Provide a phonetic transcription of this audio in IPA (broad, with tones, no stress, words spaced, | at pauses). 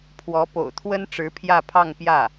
pʰwɔ˧˥ po̰˨˩ʊ̯t̪ʰwə˥n ʈ͡ʂɻ̩˧˥pʰjä˥˧pʰɑ˥˧ŋpjä˥˩